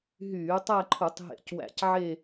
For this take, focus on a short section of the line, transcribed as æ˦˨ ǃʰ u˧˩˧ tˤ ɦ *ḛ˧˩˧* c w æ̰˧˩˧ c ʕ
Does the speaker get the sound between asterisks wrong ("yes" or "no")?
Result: no